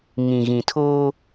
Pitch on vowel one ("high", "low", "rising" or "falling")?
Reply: low